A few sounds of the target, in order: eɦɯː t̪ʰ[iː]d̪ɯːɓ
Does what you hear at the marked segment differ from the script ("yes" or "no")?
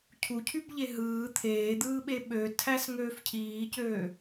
yes